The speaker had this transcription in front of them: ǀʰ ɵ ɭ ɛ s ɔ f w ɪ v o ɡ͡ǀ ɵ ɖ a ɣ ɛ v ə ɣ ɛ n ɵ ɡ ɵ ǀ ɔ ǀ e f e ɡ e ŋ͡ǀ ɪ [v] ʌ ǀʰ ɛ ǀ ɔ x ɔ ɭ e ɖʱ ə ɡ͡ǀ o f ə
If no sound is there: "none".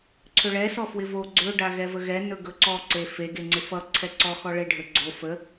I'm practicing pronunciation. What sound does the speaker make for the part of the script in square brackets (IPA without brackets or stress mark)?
f